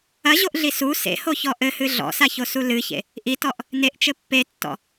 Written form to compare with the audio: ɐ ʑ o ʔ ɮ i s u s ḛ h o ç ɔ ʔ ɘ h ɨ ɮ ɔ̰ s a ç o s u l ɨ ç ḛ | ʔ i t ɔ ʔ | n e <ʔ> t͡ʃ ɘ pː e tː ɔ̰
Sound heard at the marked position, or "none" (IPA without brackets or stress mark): ʔ